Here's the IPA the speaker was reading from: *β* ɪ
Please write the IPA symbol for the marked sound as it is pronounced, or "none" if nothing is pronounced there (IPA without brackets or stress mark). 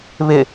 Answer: β